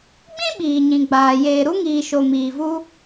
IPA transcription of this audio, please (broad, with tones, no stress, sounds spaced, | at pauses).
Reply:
ɡ͡b ĩ˦ ɓ iː˨ ɲ ĩ˨ ɡ͡b aː˨ j eː˨ ɾ u˧ ŋ iː˨ ʃ o˨ m iː˨ v u˧